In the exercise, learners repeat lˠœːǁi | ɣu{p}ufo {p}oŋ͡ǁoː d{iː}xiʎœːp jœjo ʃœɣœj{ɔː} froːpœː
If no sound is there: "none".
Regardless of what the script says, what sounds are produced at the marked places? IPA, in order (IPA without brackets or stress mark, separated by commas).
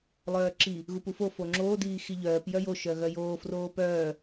p, f, iː, oː